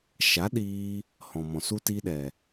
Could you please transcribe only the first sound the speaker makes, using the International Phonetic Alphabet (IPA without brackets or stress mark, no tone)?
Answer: ʃ